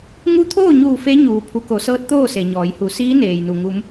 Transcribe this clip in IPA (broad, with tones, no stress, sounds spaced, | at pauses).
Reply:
ŋ u˧˥ t̪ʰ oː˥˨ ɲ uː˧˩ f e˧˥ ɲ uː˩ pʰ u˩˧ k o˩˧ s ɤː˧˥ t̚ t̪ oː˥˨ s e˩ ɲ ɔː˩˧ j h u˩˧ s iː˧˥ n eː˩ j n u˩ ŋ u˩˧ m